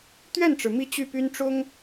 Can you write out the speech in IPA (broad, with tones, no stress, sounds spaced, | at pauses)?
t̪ ɥ ɛ˥˩ n ʈ͡ʂ ɻ̩˩ m i˥˧ t͡ɕ y˥˩ p y˥ n ʈ͡ʂ ʊ˥ ŋ